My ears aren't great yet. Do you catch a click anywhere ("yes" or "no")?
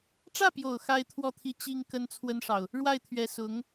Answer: no